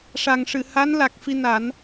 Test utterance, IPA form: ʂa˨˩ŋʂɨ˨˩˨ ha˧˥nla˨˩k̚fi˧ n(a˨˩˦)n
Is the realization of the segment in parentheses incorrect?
no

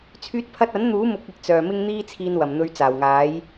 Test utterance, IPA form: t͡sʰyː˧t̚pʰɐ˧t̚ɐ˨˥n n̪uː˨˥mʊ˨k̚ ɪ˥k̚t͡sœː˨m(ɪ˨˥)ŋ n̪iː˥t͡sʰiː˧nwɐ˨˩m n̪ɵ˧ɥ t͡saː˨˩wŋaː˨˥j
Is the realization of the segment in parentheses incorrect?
yes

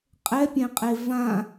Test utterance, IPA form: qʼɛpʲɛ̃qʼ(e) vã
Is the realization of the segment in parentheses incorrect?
no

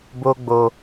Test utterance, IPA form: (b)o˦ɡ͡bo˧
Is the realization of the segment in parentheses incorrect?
no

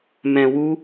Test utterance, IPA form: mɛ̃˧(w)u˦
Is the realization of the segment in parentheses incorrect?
no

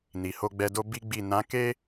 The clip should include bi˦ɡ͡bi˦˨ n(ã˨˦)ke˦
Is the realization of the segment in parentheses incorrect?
no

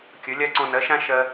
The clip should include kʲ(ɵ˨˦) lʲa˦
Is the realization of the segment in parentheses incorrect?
no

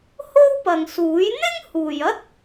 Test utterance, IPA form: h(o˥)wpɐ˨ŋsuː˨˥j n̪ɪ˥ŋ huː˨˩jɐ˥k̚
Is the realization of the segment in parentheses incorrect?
no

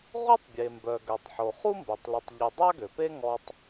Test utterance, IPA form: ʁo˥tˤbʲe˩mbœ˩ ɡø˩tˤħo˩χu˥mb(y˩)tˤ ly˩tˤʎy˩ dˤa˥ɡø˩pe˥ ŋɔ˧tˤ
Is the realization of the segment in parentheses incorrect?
yes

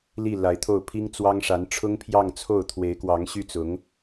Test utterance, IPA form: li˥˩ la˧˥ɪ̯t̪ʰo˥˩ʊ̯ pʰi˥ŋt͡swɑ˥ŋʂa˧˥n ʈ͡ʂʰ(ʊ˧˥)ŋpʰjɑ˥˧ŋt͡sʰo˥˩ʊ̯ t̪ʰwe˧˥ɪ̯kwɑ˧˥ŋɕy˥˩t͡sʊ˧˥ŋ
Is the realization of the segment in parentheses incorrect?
yes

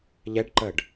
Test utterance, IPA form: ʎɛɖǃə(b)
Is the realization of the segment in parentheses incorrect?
yes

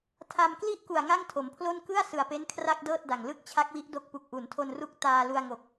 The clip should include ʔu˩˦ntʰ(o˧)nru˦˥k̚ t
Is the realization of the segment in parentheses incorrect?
no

